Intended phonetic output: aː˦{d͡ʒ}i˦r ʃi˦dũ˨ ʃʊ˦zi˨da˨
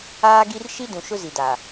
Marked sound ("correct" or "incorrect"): incorrect